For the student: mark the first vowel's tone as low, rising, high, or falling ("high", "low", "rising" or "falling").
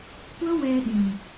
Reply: high